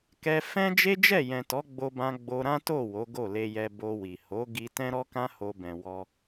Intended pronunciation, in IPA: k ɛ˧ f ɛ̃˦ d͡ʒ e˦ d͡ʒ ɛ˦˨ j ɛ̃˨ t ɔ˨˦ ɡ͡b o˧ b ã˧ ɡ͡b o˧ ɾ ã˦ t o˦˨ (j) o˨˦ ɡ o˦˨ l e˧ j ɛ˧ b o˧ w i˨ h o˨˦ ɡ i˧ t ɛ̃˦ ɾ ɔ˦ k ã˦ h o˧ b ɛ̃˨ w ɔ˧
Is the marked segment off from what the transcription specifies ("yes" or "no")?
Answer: yes